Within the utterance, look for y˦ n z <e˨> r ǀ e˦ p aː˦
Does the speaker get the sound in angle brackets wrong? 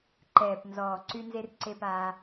yes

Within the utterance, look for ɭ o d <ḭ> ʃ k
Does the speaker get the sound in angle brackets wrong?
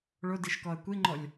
yes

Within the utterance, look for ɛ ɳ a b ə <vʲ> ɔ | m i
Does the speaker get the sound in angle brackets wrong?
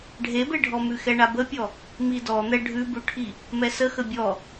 yes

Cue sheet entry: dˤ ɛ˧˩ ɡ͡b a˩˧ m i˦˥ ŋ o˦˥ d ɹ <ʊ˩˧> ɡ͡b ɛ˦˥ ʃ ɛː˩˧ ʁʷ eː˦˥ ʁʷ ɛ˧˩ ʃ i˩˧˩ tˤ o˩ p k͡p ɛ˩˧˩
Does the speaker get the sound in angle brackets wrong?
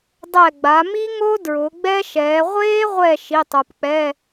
no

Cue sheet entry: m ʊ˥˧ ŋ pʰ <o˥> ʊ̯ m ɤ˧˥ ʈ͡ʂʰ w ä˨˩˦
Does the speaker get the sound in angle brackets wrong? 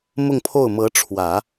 yes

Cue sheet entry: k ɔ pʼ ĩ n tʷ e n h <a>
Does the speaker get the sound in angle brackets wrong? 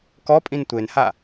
no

